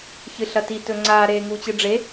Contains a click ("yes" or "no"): yes